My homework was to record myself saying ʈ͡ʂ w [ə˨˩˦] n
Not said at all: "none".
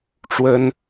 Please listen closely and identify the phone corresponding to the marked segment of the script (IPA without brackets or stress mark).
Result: ə˥